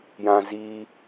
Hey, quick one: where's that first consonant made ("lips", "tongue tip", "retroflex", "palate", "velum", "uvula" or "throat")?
palate